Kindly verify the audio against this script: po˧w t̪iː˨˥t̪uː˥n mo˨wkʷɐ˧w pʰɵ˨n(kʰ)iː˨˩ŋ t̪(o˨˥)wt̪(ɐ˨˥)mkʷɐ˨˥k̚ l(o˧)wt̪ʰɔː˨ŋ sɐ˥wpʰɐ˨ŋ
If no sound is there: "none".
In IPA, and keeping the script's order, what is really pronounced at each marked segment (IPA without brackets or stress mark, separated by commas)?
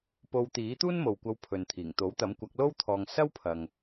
t̪ʰ, o˨˥, ɐ˨˥, o˥